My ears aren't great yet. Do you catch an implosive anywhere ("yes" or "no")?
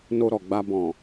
no